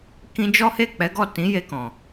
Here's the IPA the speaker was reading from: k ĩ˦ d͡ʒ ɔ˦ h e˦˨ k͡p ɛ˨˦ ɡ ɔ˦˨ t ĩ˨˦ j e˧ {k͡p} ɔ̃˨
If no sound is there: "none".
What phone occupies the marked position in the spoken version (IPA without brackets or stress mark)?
k